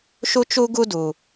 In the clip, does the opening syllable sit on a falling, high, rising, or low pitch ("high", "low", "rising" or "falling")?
high